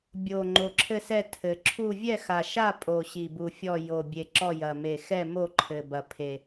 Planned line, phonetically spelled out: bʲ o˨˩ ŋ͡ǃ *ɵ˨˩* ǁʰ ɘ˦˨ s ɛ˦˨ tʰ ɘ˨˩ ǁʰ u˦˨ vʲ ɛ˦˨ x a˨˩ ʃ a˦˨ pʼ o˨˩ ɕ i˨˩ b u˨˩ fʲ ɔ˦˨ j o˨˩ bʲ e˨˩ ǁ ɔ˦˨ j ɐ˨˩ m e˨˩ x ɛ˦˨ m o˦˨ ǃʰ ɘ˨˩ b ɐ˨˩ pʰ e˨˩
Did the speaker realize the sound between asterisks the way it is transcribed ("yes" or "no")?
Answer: no